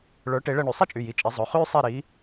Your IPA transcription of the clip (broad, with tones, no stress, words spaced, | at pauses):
ɭə˞˨˥ ʈe˨˥ɭəː˥˨ɳy˧˩˧ sˤi˥t͡ʃʼy˩˧˩ji˩˧˩ t͡ʃʼe˨˥zˤɵ˩˧˩ χyː˥sˤe˥˨ɾi˨˥